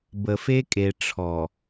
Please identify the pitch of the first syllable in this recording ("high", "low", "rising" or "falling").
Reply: low